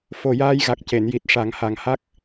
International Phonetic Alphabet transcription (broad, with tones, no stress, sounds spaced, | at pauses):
f o˨˩ j aː˧ j ɣ a˨˩ k̚ c e˨˩˨ n j i˨˩ t̚ ʂ a˨˩˦ ŋ h a˨˩ ŋ h a˦˥ k̚